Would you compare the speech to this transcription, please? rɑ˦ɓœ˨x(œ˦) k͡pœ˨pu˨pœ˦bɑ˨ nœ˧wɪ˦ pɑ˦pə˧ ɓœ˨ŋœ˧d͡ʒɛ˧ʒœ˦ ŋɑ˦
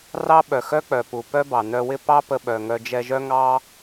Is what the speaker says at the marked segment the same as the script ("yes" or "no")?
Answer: yes